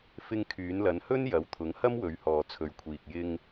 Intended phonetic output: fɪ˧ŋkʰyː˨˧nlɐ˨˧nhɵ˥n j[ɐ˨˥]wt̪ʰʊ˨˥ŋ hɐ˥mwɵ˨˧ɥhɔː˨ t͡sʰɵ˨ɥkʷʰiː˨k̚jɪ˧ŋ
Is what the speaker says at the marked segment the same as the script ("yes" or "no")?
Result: yes